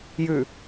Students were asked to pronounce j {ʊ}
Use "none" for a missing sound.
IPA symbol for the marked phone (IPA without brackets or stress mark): ʉ